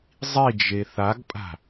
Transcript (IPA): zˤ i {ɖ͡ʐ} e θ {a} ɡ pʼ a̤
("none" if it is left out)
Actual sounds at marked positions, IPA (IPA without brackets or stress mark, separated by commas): d͡ʒ, a